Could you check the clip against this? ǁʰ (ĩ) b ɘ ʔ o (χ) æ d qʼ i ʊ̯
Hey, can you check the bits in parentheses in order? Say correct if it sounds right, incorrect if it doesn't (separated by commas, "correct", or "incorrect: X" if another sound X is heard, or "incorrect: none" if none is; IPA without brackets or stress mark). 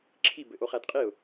incorrect: i, correct